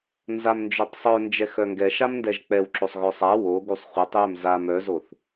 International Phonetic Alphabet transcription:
n z a m n d͡ʒ œ tˤ sˤ œ n d͡ʒ ɛ x œ ŋ ɡ ɛ ʃ a m n d ɛ ʒ k͡p ɛ w ǁ o sˤ ɣ œ sˤ a w o ɡ u sˤ χʷ ɛ tˤ j œ m z a m œ z o θ

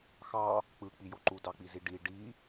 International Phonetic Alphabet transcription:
x ɑ | k͡p ɯ k͡p i j o ǃ u d ɑ k͡p i z i ɖ i ɖ i

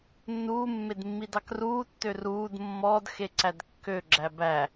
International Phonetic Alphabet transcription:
nː uː mː e d mː i d ɑ k r uː tː ø r uː d mː ɔ d x e ǀ æ d kː ø ɡ͡ǁ æ b æ

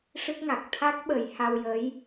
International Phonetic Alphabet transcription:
ʂ ɨ˦˥ k̚ ŋ a˨˩ k̚ t̪ʰ a˦˥ k̚ ɓ ə˨˩˦ j h a˧ w j ə˧˥ j

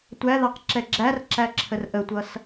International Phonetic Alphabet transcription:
tʷ æ ð ɑ q ǁ ɛ ɡ͡ǁ æ r ǁ æ ǁʰ ə r ʔ ə tʷ ʌ s

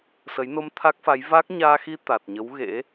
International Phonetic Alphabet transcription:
s ə˨˦ j n o˧ m t̪ʰ a˦˥ k̚ f a˨˦ j v a˦˥ k̚ ɲ aː˧ x i˧ t̪ a˨˩ t̚ ɲ ə˨˦ w ɣ ḛ˧˥

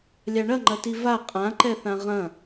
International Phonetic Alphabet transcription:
lʲ a ɳ ɐ ŋ͡ǃ ɐ t i v a qʼ ã ǃ ɛ θ ã ʁ ɐ̃

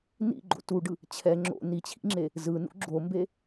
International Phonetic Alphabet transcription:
n ḭ ɡ͡ǃ o̰ t u ɖ ɯ | t͡ɕʰ ɛ ŋ͡ǁ o̰ n i t͡ɕʰ ḭ ŋ͡ǁ e | z ɯ n ṵ ɡ͡ǁ o m b e

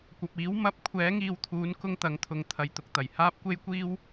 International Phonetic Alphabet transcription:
kʷ ɐ˨ p̚ iː˨˥ w m ɐ˨˥ p̚ kʷʰ ɛː˨˥ ŋ iː˨˧ w t̪ʰ uː˨˥ n k ʊ˧ ŋ t̪ ɐ˨˥ ŋ t̪ʰ ʊ˨ ŋ t̪ʰ ɐ˨ j t̪ ʊ˨ k̚ t̪ ɐ˨˩ j h aː˥ p̚ kʷ e˥ j kʷ iː˥ w

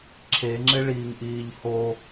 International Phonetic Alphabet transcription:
ǁʰ e ŋ͡ǁ ɪ ɭ iː ŋ ʔ iː ʎ h o

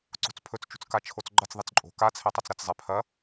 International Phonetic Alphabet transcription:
ǀ o̤ t͡s pʰ ɵ t͡s t͡ʃ ṳ t͡s k a t͡ʃʰ o t͡s ɡ͡ǃ ɐ t͡s ðˤ i t͡s ǃʼ o̤ k a t͡sʰ e tˤ ɐ t͡s ɾ ɐ t͡s zˤ e pʰ ɐ

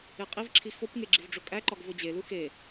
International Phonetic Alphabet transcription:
e qʼ i v ǁʰ i x o p ŋ e ɡ͡ǁ i v ɖ͡ʐ o kʼ æ ǃ ɒ ɡ v o d͡ʑ e l u x e

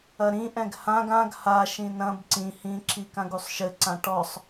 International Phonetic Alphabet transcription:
ɐ ɾ ĩ ʔ ɛ̃ ɡ h ã ɡ ã ɡ h a ʃ ĩ n ɐ̃ b ǀ ĩ h ĩ ǁ i k ã ɡ u sˤ ʃ ɘ ǀ ã ʈ ɔ sˤ

